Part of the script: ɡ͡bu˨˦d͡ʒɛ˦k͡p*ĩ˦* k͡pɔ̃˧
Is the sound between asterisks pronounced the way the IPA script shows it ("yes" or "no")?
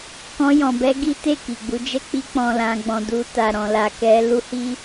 no